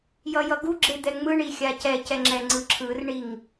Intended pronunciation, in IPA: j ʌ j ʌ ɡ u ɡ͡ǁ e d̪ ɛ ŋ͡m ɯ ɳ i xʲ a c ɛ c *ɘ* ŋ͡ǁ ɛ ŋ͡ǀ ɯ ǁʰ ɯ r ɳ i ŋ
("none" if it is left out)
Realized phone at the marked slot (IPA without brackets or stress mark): ɛ